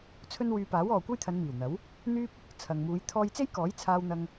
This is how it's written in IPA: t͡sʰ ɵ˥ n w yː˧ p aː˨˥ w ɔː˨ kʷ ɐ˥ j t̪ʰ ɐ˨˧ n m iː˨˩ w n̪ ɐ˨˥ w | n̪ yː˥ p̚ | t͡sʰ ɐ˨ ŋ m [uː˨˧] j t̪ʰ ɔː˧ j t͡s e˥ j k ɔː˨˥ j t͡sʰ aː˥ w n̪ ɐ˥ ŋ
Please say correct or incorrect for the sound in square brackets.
correct